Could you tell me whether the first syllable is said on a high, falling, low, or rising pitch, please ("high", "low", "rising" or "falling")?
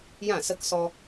falling